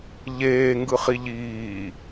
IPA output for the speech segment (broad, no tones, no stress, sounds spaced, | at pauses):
ʎ eː ŋ ɡ ɯ χ i ʎ iː